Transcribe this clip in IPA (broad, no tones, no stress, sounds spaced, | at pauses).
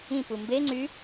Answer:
ĩ p u m b e ŋ͡ǀ y